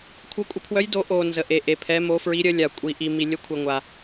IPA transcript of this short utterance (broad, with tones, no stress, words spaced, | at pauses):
kʷʰœ˧˥kʷʼə˧˥pʰwœ˧˥j do˧˥ ʔo˨ nzə˨ʔe˨ ʔe˨pʰɛ˧˥mo˧˥ fɹi˧˥ɾʲə˧˥ lʲa˨kʷʼi˨ ʔi˨ mi˨lʲə˧˥kʷʰe˨ ŋʷa˨